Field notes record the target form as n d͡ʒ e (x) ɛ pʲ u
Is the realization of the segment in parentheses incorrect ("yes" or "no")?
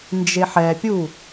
yes